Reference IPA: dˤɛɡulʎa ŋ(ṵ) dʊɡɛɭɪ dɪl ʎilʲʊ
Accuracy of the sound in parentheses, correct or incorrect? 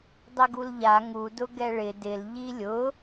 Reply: incorrect